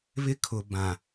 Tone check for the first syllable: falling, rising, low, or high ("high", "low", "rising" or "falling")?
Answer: high